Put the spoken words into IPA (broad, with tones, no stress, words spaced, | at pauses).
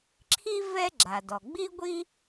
ǁʰi˥ vɛ˥ɡ͡ǁa˩dɔ˩ ɡ͡bi˥ɡʷi˥